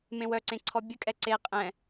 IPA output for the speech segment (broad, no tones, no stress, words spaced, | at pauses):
mẽwœǀẽ ǀʰɔbʲəkʼɛ ǀe qʼɛ̃